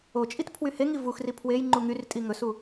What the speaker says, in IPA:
o t͡ʃʼ i t pʰ w y h e ŋ i v u x r i pʰ w e j ŋ͡ǃ u ŋ y r tʼ i ŋ ɵ s u

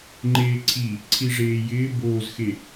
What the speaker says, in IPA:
ŋ͡ǃ eː ǀʰ i | ǀʰ i ʐ eː j ɪː b oː z x e

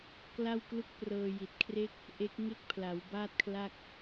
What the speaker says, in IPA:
k l a˥˩ w k l u˥˩ k̚ p r ɤː˧ j i˨˩ t̚ kʰ r e˥˩ k̚ | ʔ e˦˥ k̚ ŋ e˥˩ k̚ pʰ l a˩˦ w b aː˥˩ t̚ kʰ l a˥˩ k̚

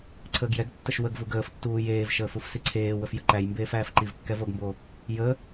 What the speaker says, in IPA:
ǀʰ əː ɡ j ɛ ɡ tː ə ʃ w ə ɡ v u ɡ əː f tː uː j eː v ʃ əː f u f s i ǀʰ eː w ə f j ə ǃ æ j m b eː f æː f ǃ i v kː ɛ v o ɡ m b o | j ə

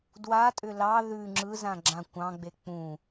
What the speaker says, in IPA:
d w a tʼ ʏ l ɑ ð ʉ ŋ͡ǁ ɯ z ã ɡ͡ǁ ã kʷ ɑ̃ ɡ͡b e k͡p ũ

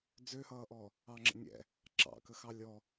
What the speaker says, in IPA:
d͡z ø h ʌː ʔ ɔː | ɑ ŋ͡ǁ ə̰ nʲ ɛ̰ | ǁ ɑ̰ k ə x ɑ lʲ ɔ

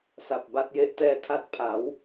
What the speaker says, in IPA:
s a˨˩ p̚ b a˦˥ t̚ j e˦˥ ʔ t ɛː˧ tʰ a˦˥ t̚ pʰ a˩˦ w

